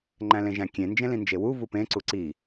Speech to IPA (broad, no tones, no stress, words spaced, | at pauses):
ŋ͡ǃæ̃lẽʒæ̃kʲẽ nd͡ʒẽlĩnd͡ʒewu vupẽ ǀuǀi